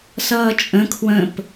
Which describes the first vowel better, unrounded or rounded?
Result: unrounded